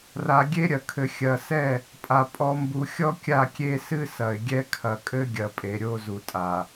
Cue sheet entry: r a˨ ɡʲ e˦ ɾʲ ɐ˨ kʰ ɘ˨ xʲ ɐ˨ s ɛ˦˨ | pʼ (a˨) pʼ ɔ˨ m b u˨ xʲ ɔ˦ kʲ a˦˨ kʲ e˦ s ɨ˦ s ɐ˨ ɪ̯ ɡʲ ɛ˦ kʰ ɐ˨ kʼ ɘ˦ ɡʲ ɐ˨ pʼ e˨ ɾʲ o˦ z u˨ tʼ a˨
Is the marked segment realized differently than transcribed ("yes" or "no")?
no